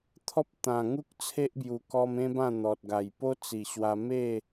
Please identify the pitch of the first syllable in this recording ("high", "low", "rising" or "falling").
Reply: high